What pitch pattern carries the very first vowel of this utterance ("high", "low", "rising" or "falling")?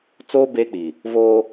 high